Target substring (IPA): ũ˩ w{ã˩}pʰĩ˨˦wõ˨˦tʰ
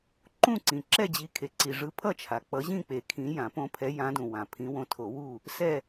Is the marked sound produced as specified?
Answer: yes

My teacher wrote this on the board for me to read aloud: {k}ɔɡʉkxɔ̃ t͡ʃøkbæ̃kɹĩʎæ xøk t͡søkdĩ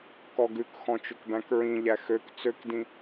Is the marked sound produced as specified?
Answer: yes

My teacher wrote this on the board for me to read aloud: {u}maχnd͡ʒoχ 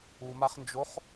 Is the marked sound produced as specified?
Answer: yes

